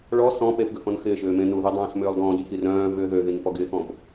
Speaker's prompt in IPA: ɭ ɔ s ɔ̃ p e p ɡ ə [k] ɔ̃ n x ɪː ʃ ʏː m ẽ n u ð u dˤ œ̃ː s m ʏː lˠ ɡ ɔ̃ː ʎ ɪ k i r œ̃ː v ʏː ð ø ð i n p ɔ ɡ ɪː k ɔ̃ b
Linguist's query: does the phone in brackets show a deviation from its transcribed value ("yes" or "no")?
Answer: no